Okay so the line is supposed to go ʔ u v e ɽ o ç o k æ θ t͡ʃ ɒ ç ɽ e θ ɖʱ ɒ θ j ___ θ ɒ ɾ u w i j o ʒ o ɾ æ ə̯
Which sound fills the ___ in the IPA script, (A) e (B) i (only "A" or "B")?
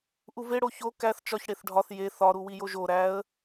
A